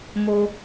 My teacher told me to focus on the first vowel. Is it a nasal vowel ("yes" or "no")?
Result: no